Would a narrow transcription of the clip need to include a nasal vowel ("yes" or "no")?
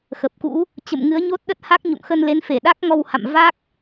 no